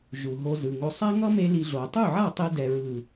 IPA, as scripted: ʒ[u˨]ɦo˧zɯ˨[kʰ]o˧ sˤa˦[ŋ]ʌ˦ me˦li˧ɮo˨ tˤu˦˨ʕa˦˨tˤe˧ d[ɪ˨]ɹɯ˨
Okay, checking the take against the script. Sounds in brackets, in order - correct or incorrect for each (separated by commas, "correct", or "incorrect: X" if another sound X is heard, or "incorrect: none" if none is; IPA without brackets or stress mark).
correct, incorrect: ŋ, correct, incorrect: ɛ˨